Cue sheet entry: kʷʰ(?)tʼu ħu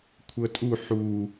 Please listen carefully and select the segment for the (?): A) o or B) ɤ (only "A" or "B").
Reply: B